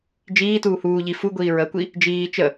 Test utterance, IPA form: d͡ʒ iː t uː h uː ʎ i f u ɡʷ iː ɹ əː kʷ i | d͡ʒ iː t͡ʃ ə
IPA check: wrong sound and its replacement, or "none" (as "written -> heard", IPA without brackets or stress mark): none